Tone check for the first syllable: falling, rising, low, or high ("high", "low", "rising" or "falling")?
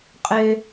low